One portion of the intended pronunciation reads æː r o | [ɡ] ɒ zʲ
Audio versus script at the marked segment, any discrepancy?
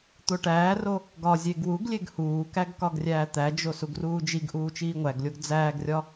no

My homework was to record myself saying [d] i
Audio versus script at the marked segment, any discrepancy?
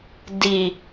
no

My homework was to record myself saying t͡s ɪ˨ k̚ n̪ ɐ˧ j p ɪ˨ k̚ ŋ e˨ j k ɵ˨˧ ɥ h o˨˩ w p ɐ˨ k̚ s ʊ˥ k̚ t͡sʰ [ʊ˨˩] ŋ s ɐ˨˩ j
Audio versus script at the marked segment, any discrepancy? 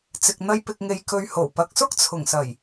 no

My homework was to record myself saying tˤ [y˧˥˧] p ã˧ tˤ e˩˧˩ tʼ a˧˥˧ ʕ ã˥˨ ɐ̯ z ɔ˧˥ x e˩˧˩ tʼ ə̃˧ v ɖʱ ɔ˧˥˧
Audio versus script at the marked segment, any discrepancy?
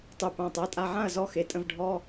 yes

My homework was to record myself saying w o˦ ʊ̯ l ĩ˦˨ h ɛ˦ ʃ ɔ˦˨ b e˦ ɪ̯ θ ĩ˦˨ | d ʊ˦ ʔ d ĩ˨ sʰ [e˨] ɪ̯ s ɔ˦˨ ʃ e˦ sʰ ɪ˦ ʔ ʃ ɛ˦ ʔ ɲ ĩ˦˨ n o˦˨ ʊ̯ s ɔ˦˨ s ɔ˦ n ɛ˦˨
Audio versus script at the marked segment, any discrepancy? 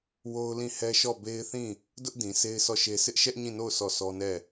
yes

